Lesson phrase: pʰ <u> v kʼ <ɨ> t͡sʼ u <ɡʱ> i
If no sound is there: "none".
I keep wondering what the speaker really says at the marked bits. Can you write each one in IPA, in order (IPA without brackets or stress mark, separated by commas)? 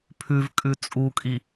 ʉ, ʉ, kʼ